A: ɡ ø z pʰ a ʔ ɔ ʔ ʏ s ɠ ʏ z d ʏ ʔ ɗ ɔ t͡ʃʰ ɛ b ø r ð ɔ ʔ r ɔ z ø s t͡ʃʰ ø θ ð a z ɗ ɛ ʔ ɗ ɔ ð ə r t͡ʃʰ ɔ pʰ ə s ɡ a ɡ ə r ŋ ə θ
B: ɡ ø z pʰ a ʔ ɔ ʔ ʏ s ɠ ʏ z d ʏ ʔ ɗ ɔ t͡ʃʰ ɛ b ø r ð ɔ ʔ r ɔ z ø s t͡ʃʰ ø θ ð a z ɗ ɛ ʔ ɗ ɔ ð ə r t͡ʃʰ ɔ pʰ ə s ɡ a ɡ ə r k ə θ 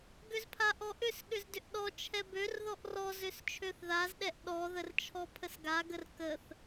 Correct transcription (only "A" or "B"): B